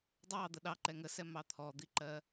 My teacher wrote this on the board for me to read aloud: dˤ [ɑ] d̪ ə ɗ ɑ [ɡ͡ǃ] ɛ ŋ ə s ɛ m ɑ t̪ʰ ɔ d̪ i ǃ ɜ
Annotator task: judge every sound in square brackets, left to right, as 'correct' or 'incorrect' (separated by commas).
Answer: correct, incorrect